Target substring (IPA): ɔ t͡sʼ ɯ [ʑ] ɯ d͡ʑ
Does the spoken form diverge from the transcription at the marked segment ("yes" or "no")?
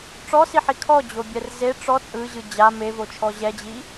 no